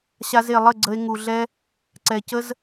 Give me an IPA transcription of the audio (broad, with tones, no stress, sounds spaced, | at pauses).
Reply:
ɕ a˧ z e˨ lˠ ə˦˨ ɡ͡ǀ ə˧ e̯ ŋ u˨ ɮ ɛ˦ | ǀ ɛ˨ c ə˦ z